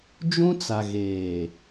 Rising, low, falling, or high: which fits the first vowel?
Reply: high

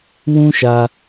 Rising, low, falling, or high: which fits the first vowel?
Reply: high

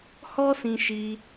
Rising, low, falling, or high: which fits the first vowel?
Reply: high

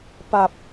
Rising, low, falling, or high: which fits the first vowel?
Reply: low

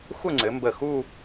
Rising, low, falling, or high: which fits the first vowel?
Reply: falling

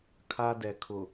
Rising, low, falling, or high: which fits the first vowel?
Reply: high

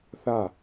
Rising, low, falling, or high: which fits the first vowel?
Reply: falling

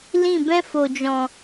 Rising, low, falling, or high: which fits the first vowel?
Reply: falling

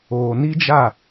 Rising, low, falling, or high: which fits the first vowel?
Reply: low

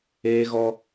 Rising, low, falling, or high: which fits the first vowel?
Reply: high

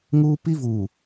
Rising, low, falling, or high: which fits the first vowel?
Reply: high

